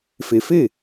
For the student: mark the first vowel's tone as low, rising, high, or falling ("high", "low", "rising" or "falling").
low